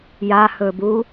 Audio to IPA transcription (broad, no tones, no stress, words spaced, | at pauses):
jahɵbu